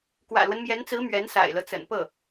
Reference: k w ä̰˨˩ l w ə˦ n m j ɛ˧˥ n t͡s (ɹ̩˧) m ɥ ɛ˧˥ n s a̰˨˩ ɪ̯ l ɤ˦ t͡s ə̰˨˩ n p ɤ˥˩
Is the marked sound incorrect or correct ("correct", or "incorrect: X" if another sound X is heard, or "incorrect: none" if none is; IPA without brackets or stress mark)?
incorrect: ɹ̩˧˥